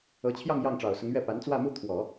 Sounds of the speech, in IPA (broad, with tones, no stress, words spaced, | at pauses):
ɤ˧˥t͡ɕʰjɑ˥˧ŋ jɑ˥˩ŋʈ͡ʂɑ˨˩ʊ̯sʊ˧˥ŋɥɛ˥˩ pa˧˥nt͡swä˥˧mu˥˩ t̪ʰwɔ˨˩˦